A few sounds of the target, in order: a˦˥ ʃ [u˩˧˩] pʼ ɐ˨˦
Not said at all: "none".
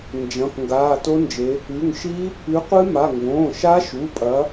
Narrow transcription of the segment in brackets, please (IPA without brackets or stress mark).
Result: u˩˧˩